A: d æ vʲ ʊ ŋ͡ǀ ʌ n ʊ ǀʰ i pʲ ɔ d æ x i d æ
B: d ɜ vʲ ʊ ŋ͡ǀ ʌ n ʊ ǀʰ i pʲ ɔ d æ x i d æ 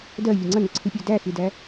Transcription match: B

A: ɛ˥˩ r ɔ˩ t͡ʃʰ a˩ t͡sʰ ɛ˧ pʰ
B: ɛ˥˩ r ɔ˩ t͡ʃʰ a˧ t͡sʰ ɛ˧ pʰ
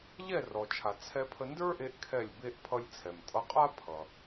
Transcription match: A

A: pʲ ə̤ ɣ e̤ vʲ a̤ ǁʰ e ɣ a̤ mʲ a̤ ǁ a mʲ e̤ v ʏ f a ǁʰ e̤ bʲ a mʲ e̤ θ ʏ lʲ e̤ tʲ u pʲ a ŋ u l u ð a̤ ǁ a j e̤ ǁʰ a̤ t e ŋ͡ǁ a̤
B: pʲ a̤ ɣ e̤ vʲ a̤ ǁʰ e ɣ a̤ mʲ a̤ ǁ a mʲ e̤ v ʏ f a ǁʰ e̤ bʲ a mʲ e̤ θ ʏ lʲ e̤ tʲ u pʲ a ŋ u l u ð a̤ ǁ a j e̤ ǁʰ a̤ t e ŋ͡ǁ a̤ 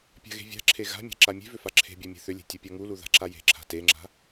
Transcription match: B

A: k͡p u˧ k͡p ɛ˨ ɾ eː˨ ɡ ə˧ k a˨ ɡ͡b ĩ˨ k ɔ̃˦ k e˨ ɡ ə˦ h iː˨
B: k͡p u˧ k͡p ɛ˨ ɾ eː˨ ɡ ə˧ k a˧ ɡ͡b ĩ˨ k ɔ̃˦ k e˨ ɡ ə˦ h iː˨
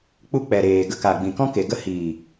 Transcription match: A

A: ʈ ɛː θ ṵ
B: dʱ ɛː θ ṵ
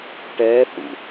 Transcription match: A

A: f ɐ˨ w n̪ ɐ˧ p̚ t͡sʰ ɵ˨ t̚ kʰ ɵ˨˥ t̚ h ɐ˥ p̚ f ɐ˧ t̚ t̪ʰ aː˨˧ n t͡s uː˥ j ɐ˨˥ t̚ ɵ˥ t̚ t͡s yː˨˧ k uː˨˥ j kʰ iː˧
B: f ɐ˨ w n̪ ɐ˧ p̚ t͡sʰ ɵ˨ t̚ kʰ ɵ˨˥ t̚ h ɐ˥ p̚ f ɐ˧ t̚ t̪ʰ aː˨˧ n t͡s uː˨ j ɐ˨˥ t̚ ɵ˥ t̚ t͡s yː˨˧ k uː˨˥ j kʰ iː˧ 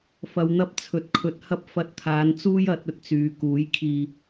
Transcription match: A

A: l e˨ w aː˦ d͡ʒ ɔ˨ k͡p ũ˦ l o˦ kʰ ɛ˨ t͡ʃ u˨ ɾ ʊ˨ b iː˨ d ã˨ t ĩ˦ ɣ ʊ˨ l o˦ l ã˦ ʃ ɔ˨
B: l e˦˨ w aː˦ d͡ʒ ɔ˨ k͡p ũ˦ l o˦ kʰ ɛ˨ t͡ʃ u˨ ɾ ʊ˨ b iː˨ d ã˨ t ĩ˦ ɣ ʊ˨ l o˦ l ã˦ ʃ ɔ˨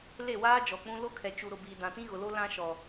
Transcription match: B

